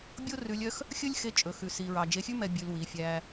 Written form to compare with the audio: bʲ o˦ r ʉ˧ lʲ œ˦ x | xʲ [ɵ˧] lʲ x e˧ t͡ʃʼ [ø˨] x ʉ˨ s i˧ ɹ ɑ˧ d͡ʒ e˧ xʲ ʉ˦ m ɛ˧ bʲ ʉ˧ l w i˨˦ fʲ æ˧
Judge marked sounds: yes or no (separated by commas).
no, no